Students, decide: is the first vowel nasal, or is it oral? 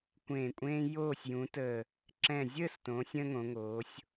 nasal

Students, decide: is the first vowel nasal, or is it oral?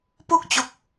oral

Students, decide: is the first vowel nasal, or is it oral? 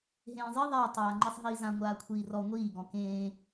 nasal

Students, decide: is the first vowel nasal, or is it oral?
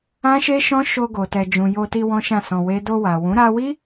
nasal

